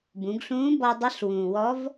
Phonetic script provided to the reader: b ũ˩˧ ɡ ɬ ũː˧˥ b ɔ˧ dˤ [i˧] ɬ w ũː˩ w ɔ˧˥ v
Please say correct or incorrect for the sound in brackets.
incorrect